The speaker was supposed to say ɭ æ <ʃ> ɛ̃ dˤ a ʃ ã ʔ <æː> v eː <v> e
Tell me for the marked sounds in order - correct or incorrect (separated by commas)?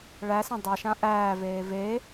incorrect, correct, correct